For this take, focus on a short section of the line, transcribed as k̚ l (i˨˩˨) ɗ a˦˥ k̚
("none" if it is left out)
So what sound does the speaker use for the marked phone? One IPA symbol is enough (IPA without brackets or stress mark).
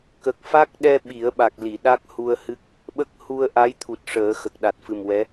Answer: i˨˩˨